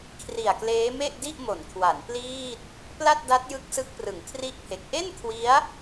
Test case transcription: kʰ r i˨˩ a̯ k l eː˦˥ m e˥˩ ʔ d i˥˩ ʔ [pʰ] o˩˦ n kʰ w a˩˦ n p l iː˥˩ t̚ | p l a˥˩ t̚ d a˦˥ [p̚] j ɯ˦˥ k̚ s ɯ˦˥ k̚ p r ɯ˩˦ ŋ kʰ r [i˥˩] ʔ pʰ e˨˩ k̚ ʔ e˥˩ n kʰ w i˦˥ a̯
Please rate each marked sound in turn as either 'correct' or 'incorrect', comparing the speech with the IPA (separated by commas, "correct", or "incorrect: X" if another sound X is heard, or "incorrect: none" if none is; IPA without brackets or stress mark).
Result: incorrect: m, incorrect: t̚, correct